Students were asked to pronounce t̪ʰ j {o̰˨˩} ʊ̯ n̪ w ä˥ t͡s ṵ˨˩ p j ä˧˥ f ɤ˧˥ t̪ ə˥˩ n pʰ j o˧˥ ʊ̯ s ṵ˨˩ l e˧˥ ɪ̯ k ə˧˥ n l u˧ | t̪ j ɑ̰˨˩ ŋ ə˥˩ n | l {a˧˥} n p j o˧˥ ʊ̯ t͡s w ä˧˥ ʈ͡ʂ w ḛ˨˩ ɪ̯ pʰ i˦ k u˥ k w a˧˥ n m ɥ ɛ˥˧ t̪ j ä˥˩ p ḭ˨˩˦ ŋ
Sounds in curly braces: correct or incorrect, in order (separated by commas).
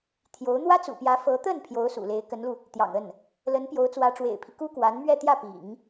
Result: incorrect, incorrect